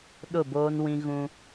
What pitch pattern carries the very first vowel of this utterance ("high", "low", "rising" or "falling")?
falling